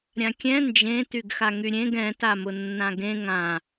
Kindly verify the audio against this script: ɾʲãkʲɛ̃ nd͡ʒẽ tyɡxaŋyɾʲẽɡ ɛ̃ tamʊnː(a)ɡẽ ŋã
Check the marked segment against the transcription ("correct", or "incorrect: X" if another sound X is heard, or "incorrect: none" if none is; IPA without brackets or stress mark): incorrect: ã